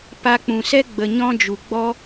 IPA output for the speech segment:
p a˧ k͡p ũ˨ s ɛ˦ ɡ͡b ə˨ ɲ ɔ̃˧ d͡ʒ u˨ ɡ͡b ɔ˦

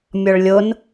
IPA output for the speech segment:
mʲ ɔ ɭ lʲ o n

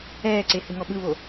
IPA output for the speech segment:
ɛː ǀ e h ɯ ŋ ɔ ɓ ɯ β o

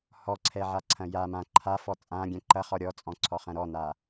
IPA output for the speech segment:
h ɔ ǀʰ ɛ ʕ a ǀʰ ɐ̃ j a m ã ǃʰ a f ɔ t͡sʼ ã ɡʲ ɛ̃ ǃ ɐ χ ɔ ɾʲ ɔ t͡sʼ ɔ̃ ǀʰ ɔ χ ɐ̃ ɾ ɔ n a

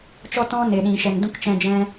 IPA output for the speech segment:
t͡ʃ ɔ˧ t ɔ̃˧ n e˨ ɗ ĩ˨ ʃ ɛ˨ n d ũ˦ k t͡ʃ ɛ̃˧ d͡ʒ ɛ̃˦

